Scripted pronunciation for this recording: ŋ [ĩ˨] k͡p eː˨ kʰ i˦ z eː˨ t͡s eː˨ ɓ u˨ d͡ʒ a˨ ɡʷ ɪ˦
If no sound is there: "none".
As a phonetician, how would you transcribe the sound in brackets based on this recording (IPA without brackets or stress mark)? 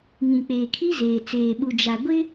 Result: ĩ˨